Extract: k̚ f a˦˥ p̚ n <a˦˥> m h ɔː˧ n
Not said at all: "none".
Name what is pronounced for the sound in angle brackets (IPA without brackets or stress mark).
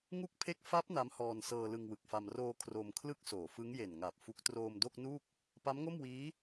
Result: a˦˥